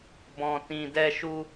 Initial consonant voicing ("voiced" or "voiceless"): voiced